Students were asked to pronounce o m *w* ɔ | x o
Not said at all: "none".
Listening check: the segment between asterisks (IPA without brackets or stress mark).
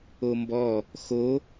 b